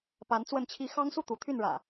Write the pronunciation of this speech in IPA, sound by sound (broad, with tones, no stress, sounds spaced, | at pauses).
p a˨˦ n t͡s w ə˥˨ n t͡ɕʰ i˨˦ x ɑ˦ ŋ s u˥˨ t̪ u˨˦ t̪ʰ y˥˨ n ɻ ä̰˨˩